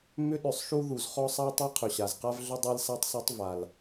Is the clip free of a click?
yes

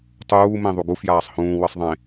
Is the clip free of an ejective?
yes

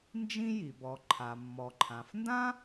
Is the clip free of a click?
no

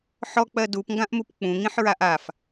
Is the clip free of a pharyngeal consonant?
no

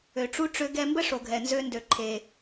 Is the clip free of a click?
no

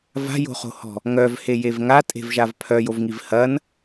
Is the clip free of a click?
yes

